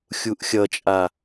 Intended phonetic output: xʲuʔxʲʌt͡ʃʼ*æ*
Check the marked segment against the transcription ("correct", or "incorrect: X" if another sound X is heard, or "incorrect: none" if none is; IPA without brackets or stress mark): incorrect: a